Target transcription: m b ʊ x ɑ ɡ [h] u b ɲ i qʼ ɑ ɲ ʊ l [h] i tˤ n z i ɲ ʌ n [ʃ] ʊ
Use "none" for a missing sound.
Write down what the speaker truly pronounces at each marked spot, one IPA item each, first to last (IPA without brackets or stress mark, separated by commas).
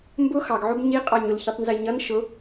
ʕ, ç, ʃ